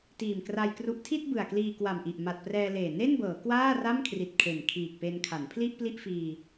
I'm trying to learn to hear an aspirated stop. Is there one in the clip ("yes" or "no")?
yes